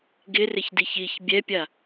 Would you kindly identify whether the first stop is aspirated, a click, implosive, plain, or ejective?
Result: plain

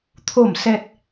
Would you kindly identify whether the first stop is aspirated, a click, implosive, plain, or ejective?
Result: aspirated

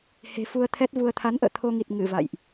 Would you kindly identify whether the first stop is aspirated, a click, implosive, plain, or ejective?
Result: aspirated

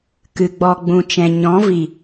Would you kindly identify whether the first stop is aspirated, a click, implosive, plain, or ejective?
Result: plain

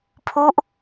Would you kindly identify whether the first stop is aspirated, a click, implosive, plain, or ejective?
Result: aspirated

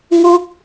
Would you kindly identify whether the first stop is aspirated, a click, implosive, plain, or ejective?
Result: plain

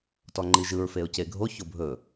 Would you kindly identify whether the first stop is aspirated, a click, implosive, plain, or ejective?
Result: plain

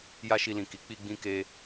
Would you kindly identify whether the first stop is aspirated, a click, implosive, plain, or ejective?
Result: plain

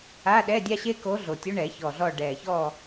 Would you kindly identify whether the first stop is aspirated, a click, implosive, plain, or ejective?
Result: implosive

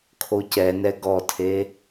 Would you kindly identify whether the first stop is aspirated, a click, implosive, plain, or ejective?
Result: aspirated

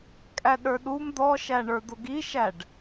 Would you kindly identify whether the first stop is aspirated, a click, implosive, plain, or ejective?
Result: ejective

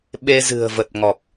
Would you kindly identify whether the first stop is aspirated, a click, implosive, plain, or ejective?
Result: implosive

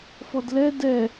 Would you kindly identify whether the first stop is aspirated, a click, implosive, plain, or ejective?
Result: plain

